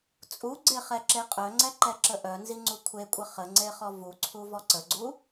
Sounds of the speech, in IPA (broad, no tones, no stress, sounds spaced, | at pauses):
t͡sʼ u ɡ͡ǀ e χ ɛ ǁ e qʼ œ ŋ͡ǀ ɛ ǃ ɛ ǁ ə ʔ œ n z i ŋ͡ǀ u kʷʰ e kʷʼ ə χ ə ŋ͡ǀ e χ ɔ v u ǀʰ u v ɔ ǀ ə ɡ͡ǀ u